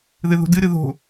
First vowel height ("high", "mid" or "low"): high